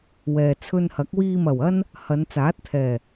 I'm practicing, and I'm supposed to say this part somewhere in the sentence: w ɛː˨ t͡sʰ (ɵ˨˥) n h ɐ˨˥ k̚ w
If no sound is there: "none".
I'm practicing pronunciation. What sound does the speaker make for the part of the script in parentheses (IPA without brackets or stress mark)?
ɵ˧